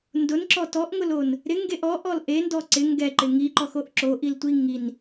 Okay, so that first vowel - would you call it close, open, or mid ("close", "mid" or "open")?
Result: close